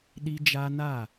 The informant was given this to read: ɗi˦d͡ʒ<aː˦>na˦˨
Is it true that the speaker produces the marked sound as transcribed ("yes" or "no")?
no